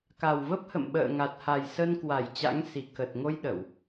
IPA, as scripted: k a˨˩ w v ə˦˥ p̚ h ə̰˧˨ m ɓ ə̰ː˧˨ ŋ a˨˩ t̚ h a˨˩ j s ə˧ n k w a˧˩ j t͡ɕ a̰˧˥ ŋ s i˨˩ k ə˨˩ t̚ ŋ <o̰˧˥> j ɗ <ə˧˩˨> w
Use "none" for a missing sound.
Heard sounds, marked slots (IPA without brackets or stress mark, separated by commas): o˧, ə˧˩˨